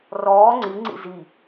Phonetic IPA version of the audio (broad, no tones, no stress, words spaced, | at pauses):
rɔː ŋ͡ǀiŋ͡ǀḭ zi